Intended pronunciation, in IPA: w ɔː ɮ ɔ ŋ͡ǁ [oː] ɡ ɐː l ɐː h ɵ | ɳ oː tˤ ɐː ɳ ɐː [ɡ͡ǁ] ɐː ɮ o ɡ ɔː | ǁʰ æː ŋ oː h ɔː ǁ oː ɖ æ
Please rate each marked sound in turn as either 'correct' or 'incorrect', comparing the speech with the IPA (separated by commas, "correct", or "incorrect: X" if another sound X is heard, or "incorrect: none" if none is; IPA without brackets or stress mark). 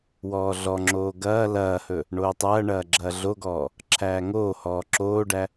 correct, correct